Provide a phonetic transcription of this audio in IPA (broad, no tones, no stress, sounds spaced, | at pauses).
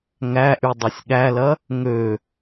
ŋ æ ʔ y dˤ e sʲ ɠ æ l ɐ | ŋ ø